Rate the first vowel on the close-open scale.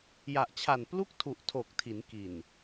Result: open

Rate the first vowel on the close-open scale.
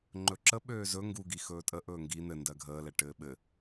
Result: mid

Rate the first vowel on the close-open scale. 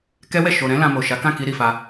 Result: mid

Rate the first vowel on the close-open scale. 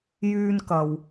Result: close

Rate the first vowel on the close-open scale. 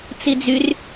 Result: close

